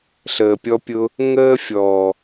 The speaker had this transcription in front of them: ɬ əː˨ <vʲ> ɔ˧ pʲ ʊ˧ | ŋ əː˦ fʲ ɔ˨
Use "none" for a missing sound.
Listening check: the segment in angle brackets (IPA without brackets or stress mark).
pʲ